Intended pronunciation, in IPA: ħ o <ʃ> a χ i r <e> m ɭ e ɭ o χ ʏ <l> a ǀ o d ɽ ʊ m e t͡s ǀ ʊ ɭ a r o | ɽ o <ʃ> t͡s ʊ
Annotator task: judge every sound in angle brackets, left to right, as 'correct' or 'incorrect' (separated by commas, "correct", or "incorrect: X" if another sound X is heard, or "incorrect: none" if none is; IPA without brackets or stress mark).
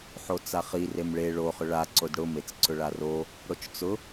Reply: incorrect: t͡s, correct, incorrect: ɭ, incorrect: t͡ʃ